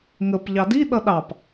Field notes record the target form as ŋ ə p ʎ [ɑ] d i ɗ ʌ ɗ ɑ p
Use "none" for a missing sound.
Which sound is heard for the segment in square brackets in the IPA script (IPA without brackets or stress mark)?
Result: ɑ